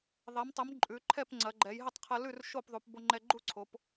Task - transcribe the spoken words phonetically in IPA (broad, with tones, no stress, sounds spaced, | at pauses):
ðˤ ɛ˩˧ m tˤ ə˩˧ m ǃʼ ʉ˩˧ ǃʰ ɛ˥˨ p ŋ͡ǀ ɐ˩˧ ɡ͡ǃ ɛ˩˧ j ɦ ə˥˨ tˤ qʰ ɐ˧ l ʉ˥˨ r ʃ o˥˨ p ðˤ u˩˧ p b o˧ ŋ͡ǃ ɛ˧ ɡ͡ǃ u˥˨ ǀʰ o˩˧ p